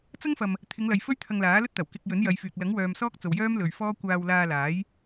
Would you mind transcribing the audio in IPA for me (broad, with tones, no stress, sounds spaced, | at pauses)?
t͡s ɐ˥ ŋ f ɐ˨ m | t̪ʰ ɪ˨˧ ŋ l ɐ˨ j f ɵ˥ ɥ t̪ʰ ɐ˧ ŋ l aː˨˥ l ɵ˥ t̚ t̪ ɐ˨˩ w k ɪ˧ k̚ j ɵ˨˥ n j ɐ˨˧ j f yː˨ k̚ l ɐ˨˥ ŋ w œː˨ m s ɔː˥ k̚ t͡s o˨ w j œː˥ m l ɵ˨ ɥ f ɔː˥ kʷ aː˧ w l aː˧ l aː˨˥ j